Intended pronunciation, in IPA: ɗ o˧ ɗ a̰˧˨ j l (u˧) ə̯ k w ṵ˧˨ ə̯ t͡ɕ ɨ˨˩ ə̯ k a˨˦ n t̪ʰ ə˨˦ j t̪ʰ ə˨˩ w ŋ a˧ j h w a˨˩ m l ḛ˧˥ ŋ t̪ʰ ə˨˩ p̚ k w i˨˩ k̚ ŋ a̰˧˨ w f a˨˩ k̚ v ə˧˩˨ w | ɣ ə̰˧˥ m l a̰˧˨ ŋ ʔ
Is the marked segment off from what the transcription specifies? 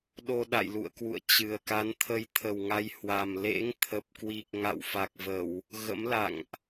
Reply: yes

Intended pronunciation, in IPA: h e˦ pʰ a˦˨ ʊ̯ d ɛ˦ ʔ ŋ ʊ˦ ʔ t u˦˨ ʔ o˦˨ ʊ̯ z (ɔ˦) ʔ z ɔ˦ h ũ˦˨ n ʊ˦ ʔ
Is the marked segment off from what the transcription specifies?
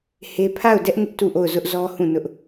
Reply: yes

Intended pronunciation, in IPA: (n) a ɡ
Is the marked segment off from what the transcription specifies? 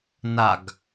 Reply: no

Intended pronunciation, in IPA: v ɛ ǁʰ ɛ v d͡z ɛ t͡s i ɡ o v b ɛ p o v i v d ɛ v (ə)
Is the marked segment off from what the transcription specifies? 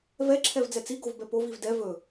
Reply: yes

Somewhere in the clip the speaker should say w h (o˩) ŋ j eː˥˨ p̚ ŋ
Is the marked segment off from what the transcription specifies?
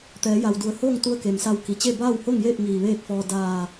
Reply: yes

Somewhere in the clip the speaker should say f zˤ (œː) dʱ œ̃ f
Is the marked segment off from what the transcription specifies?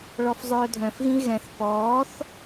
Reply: no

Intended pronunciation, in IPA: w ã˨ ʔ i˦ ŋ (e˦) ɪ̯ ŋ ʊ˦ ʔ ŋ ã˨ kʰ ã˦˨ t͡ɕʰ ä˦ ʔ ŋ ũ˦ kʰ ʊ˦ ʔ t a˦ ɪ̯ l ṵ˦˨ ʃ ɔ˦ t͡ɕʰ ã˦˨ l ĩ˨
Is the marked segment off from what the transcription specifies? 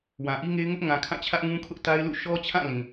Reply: no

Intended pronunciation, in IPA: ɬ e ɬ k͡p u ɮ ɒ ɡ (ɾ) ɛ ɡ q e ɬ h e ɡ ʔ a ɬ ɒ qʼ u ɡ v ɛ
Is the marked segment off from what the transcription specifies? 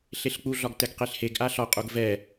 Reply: yes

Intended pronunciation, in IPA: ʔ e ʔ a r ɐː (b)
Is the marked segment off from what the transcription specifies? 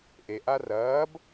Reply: no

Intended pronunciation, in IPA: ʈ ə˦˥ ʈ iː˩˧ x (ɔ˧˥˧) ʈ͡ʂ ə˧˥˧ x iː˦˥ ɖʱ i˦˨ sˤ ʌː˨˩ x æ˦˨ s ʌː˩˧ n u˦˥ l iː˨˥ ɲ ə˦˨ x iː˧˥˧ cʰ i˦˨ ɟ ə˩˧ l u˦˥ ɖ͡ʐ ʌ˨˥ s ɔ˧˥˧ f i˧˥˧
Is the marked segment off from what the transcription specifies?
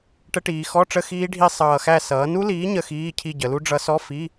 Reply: no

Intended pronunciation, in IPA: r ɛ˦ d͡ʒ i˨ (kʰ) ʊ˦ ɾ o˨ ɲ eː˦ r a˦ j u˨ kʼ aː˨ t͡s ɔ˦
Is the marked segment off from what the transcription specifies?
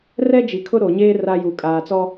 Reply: no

